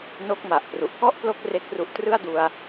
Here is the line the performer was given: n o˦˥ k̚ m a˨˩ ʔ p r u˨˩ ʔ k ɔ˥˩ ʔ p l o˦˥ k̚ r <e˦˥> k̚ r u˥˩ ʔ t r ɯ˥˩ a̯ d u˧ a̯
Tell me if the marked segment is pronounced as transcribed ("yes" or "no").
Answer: no